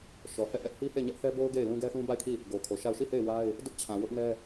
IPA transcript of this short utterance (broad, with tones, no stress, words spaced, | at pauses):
ʃɔ˨ hɛ˦˨ ʔɛ˦ʔhi˦he˦˨ɪ̯ɲɛ˦ʔ θɛ˦bo˦ʊ̯ ɡe˦˨ɪ̯ lũ˦ɡɛ˦θũ˦ ba˦˨ɪ̯kʰi˦˨ | ɡo˨kʰo˨ʃa˦˨ʊ̯ ʃi˦˨he˦˨ɪ̯ wa˦ɪ̯ | dʊ˦ʔt͡ɕʰã˨wʊ˦ʔnɛ˦